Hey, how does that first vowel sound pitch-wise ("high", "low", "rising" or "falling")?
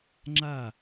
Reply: falling